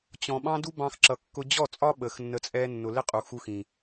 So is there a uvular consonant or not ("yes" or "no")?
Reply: yes